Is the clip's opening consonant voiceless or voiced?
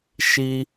voiceless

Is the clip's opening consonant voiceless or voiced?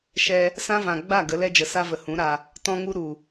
voiceless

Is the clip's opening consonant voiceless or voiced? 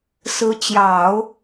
voiceless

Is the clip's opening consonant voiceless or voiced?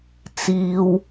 voiceless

